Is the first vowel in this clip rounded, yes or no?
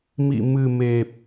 no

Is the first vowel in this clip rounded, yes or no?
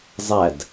no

